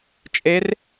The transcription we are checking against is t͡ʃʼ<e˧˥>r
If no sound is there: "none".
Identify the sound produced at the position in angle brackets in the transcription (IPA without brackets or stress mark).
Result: e˧˥